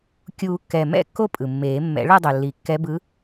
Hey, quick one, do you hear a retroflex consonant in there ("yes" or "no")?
yes